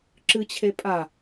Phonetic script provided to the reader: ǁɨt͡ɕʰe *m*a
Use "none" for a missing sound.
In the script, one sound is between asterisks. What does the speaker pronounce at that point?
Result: pʼ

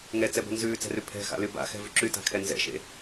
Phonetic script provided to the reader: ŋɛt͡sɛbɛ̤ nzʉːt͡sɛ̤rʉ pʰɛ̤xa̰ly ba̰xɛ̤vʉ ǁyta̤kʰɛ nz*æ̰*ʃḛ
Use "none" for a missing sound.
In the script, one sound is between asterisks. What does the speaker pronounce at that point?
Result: ɛ̰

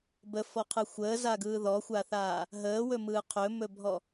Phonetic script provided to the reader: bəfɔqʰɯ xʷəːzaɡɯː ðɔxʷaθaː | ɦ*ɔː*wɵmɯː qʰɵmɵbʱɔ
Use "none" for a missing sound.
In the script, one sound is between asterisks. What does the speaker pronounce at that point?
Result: əː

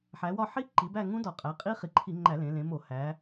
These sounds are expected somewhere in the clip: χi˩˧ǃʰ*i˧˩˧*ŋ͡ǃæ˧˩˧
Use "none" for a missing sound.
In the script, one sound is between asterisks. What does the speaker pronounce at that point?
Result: i˧˩˧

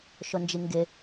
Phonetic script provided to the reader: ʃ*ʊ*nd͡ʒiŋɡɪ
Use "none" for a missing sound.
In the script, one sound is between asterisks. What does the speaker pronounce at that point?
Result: ʊ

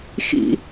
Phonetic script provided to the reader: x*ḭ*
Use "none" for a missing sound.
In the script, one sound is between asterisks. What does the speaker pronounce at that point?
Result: ḭ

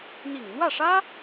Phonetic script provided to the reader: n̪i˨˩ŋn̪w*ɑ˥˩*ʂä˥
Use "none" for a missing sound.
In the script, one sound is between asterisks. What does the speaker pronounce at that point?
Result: ä˥˩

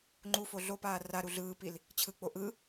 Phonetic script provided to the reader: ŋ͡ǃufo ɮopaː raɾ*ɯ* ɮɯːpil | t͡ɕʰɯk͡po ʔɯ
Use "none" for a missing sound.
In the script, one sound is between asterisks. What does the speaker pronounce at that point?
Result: u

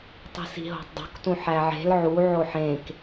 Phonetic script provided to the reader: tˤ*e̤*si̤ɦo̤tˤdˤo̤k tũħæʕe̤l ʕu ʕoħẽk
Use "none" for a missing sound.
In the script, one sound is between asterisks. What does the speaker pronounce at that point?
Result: i̤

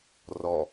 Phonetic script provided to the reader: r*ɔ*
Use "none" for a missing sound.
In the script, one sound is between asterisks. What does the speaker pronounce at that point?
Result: ɔ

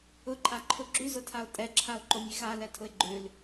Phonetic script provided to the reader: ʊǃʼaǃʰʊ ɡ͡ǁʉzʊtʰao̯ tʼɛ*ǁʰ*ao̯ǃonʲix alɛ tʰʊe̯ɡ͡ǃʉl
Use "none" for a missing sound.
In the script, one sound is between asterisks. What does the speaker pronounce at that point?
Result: ǁʰ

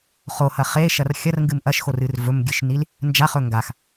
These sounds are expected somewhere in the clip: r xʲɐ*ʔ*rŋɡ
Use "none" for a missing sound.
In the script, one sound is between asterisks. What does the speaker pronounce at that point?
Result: none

